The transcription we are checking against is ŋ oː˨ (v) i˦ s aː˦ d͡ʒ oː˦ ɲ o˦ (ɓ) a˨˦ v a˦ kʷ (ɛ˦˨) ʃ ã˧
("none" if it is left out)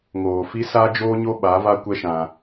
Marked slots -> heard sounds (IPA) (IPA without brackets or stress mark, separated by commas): f, ɓ, ɛ˦